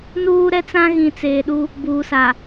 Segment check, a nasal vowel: present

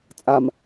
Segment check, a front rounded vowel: absent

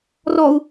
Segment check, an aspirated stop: absent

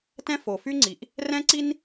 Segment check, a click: present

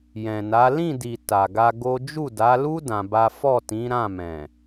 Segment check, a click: absent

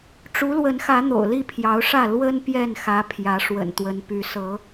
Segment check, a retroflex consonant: present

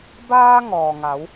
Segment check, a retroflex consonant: absent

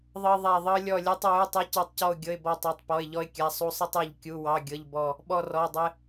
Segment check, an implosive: present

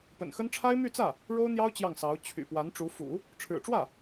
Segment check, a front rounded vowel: present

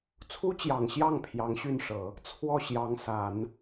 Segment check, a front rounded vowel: present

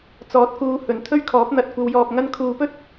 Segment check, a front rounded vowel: absent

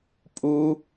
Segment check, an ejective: present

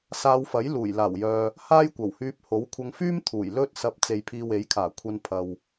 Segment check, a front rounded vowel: present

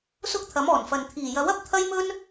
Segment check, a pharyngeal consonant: absent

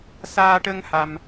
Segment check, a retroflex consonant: present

